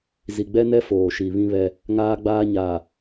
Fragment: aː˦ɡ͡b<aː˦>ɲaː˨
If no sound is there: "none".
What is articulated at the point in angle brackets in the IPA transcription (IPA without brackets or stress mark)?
aː˦